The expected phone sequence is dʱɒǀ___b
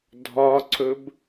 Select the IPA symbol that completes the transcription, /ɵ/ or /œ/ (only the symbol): ɵ